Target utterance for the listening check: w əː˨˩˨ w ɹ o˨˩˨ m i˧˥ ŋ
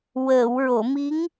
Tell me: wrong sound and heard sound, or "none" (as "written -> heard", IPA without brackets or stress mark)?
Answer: none